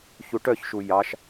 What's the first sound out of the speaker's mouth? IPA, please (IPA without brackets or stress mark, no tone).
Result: ç